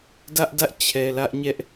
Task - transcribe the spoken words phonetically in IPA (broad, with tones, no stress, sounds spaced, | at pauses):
d ä˦ ʔ d ä˦ ʔ t͡ɕʰ ɛ˨ l ä˦ ʔ ɲ ɛ˦ ʔ